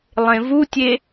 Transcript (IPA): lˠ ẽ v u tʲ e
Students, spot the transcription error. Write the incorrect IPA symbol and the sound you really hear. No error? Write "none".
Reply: none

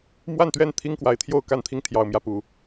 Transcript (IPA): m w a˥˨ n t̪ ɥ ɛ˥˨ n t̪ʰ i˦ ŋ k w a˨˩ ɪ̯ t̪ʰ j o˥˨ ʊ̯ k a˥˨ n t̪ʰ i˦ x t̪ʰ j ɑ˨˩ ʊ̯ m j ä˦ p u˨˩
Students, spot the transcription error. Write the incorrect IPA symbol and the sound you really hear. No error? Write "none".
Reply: x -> ŋ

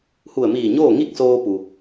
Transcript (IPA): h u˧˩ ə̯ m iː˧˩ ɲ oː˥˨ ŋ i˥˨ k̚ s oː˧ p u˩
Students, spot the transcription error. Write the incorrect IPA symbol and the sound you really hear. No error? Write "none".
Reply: none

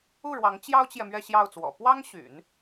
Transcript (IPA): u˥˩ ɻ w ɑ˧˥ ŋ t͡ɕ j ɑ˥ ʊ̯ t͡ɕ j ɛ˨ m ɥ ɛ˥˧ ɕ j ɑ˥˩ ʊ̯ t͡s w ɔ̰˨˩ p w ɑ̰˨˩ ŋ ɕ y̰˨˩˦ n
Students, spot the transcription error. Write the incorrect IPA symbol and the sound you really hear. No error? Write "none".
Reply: ɑ̰˨˩ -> ɑ˥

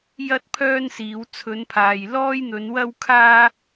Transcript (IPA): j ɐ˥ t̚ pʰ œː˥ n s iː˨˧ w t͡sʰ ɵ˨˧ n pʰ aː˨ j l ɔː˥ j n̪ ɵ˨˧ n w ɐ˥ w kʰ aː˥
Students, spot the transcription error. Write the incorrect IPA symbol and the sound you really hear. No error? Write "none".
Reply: none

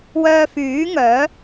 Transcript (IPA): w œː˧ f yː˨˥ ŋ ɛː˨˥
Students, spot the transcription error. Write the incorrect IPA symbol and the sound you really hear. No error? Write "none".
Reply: ɛː˨˥ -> œː˨˥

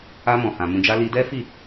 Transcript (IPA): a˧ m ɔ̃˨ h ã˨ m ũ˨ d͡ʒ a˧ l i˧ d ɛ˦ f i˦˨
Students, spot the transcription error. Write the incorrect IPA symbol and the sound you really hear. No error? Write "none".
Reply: none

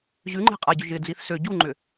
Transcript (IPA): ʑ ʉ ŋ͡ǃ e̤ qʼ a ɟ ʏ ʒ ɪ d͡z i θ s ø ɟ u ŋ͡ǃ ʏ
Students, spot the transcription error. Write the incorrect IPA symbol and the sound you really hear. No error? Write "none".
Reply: none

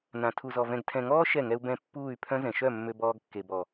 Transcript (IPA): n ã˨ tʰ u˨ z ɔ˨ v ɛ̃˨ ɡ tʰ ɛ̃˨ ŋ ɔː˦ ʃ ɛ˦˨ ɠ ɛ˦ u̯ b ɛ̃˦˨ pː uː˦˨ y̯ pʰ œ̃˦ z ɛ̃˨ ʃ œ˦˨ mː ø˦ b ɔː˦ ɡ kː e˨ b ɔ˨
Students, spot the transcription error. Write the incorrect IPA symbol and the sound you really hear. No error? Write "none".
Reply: ɠ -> ŋ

